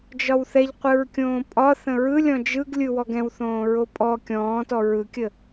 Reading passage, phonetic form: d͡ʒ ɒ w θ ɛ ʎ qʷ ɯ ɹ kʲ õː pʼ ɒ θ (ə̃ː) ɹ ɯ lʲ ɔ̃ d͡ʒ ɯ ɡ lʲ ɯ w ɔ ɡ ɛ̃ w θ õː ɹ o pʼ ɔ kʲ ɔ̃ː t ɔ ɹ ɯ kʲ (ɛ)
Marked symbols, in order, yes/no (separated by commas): no, no